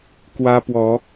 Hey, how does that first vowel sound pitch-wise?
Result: high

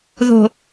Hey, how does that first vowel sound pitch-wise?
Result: low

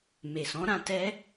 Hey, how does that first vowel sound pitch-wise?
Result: low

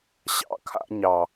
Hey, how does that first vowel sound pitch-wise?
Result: low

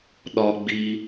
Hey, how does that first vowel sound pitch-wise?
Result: high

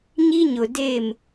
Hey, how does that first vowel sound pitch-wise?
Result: high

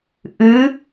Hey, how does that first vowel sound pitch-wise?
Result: rising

